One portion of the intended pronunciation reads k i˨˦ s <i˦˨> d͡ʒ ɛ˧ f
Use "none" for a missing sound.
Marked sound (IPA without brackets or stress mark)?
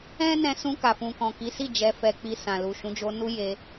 i˦˨